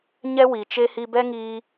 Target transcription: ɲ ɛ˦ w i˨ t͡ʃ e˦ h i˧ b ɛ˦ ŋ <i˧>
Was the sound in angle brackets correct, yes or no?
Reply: no